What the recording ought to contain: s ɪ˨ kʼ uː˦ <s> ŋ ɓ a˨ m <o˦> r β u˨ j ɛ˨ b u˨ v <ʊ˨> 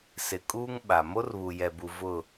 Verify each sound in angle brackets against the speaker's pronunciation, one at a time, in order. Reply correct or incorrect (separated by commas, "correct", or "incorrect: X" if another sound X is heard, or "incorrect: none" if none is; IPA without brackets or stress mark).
incorrect: none, correct, incorrect: ʊ˦˨